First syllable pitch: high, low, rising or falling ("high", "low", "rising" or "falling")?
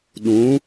rising